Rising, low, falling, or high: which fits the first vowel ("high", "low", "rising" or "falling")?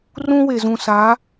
high